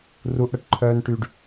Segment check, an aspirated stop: present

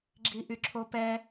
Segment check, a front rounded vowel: present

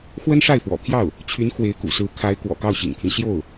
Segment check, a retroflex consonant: present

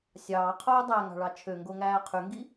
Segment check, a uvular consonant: present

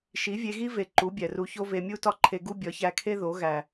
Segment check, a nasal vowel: absent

